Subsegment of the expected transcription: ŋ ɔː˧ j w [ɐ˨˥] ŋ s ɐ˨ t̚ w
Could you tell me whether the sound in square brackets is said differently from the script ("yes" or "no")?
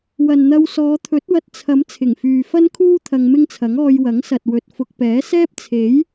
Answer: no